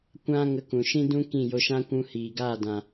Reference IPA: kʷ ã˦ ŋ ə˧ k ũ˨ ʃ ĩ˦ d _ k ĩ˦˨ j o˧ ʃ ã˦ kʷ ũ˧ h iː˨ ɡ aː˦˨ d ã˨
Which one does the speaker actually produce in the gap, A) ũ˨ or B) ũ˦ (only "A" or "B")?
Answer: B